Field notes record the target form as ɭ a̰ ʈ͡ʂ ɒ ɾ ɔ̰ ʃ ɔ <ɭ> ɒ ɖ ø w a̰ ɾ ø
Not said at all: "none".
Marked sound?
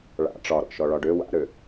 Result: ɭ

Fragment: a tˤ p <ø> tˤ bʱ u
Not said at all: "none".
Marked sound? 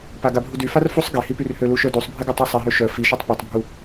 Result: ø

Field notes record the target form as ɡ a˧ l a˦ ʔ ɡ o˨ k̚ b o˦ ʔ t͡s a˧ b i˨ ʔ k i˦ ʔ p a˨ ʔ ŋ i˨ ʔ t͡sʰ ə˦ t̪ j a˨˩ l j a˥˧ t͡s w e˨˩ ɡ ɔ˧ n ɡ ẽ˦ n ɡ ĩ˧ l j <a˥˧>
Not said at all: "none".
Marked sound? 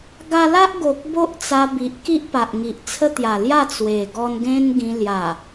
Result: a˨˩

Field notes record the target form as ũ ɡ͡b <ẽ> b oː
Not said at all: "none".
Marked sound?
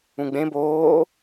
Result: ẽ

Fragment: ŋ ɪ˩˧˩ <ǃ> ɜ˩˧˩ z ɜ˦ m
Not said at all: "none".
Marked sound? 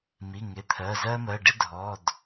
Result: t̪ʰ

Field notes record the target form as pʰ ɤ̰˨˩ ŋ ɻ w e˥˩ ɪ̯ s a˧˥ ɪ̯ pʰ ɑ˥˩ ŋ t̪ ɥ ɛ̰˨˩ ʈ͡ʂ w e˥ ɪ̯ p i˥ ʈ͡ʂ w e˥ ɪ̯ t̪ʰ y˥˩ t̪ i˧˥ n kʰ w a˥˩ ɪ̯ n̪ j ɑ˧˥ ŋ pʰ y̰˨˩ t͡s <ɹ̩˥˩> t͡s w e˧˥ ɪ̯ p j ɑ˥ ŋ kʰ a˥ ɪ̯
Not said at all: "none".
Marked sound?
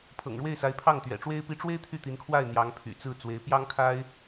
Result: ɹ̩˥˩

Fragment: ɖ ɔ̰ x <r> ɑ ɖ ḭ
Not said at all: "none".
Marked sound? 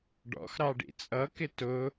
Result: ɾ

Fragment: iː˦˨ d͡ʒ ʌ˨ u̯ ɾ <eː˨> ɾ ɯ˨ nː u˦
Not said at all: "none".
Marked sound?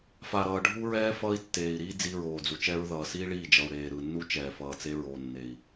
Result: eː˨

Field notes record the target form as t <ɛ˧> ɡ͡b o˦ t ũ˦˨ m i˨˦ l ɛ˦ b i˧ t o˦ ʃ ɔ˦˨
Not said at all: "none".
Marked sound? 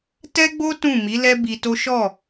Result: ɛ˦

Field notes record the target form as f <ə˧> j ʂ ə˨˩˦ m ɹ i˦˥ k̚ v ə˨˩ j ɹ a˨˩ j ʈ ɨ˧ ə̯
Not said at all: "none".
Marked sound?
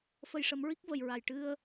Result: ə˧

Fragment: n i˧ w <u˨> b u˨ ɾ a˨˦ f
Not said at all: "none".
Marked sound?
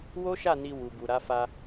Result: u˨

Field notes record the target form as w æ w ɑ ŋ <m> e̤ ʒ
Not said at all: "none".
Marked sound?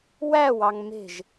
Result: m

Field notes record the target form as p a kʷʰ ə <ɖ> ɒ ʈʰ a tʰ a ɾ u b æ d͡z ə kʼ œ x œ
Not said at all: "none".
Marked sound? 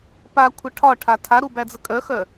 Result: ʈʰ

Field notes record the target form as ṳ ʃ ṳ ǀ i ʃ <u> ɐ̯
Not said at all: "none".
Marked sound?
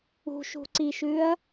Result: ʉ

